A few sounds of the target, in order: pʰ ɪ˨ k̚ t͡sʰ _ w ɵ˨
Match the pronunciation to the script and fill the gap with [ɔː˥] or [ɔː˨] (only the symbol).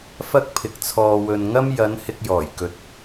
ɔː˨